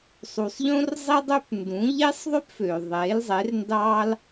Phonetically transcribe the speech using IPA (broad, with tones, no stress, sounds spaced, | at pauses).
sˤ u˨ sˤ ʎ õ˥ r zˤ i˥ dˤ ø˥ p n d ũ˨˥ ʎ e˥ sˤ ðˤ ø˥ p f øː˨ ðˤ eː˨˥ l zˤ e˨˥ r n d ɑː˥ l